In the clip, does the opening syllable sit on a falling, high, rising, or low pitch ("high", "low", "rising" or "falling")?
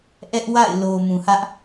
high